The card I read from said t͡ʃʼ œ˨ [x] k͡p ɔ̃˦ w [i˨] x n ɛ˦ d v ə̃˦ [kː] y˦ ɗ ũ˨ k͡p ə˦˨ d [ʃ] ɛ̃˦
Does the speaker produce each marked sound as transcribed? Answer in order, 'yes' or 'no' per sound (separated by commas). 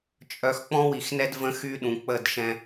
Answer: yes, yes, no, yes